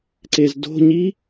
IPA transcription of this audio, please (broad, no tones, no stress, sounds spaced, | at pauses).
ǀ e z d o̤ ɲ i